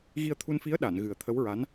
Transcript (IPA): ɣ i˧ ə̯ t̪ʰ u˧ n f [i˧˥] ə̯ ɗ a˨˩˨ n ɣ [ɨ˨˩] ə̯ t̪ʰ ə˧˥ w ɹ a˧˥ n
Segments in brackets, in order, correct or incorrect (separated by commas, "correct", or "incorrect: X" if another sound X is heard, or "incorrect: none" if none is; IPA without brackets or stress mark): correct, correct